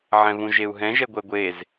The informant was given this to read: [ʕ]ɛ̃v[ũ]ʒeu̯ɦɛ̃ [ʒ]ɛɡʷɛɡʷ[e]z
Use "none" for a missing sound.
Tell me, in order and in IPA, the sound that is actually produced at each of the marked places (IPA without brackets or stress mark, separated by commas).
ʕ, ũ, ʒ, e